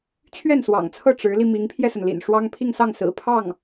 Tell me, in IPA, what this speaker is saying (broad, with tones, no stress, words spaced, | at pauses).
t͡ɕʰɥɛ˥˩nswɑ̰˨˩ŋt͡sʰɤ˥˩ ʈ͡ʂɻ̩˧˥li˧ mi˧˥ŋpʰjɛ˧sə˩nlḭ˨˩n ʂwɑ˥ŋ pʰi˥˧ŋsɑ˥˩ŋ sɹ̩˨˩pʰɑ˥˩ŋ